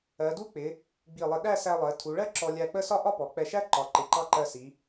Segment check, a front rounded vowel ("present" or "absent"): absent